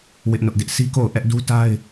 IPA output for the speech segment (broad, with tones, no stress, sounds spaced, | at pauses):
w ɪ˦ ʔ n ʊ˦ ʔ d ɪ˦ ʔ sʰ i˦ k o˦˨ ʊ̯ ʔ ɛ˦ ʔ d u˦ t a˦ ɪ̯